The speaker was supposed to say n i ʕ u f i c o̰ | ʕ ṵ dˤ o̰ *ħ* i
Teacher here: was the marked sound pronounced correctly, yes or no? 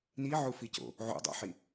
yes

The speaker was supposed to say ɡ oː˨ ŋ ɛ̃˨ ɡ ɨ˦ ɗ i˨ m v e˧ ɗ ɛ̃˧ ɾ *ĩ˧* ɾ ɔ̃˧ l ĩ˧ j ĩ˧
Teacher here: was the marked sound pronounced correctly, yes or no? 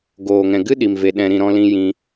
yes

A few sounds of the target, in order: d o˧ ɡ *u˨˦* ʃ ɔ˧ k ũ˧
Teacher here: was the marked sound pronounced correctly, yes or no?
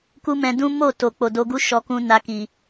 no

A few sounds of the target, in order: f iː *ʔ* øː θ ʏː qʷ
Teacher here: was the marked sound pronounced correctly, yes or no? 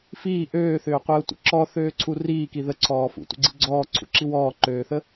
yes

